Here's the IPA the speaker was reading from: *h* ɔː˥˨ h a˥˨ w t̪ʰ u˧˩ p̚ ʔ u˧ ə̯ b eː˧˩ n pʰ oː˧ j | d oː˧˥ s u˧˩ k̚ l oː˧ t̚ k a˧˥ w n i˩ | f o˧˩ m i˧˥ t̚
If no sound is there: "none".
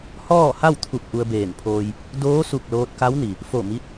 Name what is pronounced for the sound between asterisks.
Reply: h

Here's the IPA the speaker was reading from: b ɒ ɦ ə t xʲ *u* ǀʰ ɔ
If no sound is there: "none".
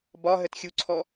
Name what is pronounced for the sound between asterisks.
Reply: u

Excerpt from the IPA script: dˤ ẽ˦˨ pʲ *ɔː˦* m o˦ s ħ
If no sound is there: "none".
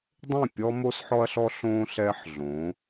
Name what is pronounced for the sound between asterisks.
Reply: ɔ˦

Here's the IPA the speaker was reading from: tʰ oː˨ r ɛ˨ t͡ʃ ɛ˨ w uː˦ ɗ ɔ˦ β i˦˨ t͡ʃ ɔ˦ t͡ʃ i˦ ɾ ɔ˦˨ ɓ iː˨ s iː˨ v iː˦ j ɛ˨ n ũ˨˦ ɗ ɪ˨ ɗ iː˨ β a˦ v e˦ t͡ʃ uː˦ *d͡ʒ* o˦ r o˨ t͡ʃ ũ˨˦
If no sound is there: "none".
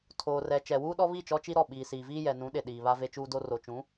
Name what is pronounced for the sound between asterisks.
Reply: d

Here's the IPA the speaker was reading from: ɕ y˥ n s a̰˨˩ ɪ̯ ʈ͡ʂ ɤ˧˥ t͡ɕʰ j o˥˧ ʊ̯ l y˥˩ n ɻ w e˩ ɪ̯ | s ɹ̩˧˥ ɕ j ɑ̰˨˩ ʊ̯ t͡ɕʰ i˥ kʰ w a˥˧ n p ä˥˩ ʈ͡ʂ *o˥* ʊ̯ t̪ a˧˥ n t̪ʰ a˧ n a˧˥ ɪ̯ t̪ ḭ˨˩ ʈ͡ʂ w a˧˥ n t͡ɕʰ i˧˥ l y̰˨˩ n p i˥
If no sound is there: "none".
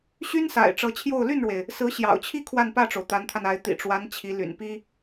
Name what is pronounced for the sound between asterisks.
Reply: o˩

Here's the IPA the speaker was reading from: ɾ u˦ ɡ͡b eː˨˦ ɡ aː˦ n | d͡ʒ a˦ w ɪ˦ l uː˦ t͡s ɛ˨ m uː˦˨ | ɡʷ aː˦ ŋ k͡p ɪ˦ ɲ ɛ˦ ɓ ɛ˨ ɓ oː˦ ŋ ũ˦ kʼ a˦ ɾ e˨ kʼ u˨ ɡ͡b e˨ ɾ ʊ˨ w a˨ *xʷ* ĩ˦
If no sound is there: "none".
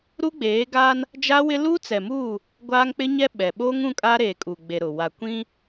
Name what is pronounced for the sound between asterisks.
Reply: kʷ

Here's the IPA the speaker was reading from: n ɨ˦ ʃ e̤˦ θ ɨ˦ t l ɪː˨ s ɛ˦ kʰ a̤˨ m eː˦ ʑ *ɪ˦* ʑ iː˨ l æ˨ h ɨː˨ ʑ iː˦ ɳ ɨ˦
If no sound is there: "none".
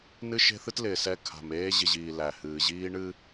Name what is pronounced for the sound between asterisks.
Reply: ɪ˨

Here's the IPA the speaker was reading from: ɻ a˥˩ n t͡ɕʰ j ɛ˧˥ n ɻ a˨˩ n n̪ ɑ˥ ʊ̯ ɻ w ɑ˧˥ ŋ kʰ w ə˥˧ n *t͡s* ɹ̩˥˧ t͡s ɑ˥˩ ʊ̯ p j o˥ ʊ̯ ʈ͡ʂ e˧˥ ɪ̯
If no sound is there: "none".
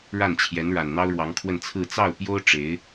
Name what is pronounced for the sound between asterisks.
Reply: t͡sʰ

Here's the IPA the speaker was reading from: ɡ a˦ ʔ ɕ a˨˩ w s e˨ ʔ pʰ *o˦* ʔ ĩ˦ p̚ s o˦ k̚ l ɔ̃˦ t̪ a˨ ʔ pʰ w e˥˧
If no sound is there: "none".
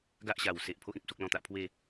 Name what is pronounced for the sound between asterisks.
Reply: o˦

